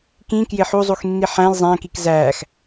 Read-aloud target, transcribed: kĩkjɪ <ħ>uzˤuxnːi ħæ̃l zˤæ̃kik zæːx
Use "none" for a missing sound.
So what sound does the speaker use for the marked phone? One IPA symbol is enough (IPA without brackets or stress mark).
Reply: ħ